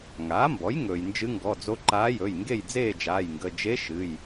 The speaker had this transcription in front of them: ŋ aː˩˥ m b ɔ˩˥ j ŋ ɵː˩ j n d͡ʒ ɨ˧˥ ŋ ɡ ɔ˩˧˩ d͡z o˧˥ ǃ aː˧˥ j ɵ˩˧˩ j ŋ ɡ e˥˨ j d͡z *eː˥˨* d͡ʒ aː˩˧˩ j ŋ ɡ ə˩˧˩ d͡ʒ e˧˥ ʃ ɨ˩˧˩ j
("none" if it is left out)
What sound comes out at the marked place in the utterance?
eː˥˨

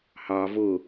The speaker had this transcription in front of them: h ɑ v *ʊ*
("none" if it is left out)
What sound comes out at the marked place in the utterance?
ʊ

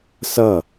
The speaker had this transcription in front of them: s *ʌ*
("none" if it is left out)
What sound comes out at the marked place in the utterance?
ʌ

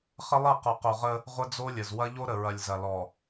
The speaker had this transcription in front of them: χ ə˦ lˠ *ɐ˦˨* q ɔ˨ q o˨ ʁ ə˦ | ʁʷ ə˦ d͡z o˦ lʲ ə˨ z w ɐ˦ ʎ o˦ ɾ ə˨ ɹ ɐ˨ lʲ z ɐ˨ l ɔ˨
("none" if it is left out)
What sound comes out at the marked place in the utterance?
ɐ˦˨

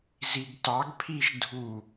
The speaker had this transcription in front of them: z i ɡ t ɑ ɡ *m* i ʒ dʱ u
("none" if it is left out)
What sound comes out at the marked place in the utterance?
pʰ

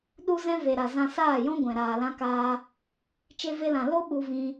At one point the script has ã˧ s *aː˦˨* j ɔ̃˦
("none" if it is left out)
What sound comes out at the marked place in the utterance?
aː˦˨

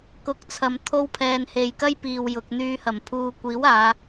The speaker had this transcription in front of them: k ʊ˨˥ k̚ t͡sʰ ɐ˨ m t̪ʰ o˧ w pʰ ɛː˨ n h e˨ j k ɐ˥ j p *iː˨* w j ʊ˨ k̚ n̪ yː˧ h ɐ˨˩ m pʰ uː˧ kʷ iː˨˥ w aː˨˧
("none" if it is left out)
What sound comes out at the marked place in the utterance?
iː˨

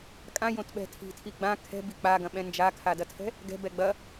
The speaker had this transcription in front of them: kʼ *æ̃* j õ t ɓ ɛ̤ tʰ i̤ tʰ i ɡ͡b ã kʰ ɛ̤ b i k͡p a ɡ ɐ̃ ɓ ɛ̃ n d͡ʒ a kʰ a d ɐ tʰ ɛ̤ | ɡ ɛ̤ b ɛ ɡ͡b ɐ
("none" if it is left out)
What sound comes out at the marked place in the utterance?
ã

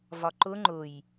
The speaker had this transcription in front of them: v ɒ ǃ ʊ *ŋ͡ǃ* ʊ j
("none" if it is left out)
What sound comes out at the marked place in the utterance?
ŋ͡ǃ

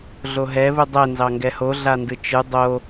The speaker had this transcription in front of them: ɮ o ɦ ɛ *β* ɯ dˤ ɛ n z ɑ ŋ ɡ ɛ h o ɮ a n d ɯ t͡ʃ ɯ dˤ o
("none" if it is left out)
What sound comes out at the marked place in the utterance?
β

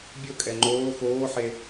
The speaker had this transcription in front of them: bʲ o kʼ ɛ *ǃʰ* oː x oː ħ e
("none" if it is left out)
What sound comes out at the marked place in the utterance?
ŋ͡ǃ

